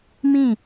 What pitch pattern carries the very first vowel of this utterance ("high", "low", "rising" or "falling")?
falling